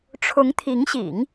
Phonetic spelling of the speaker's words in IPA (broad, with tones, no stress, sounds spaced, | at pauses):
ʈ͡ʂʰ ʊ˧˥ ŋ t̪ʰ i˧˥ ŋ ɕ ḭ˨˩˦ ŋ